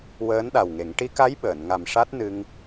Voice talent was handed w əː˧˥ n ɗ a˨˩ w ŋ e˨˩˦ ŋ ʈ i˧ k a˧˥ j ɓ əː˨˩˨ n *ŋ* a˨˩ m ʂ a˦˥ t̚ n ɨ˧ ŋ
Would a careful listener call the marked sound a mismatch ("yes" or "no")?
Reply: no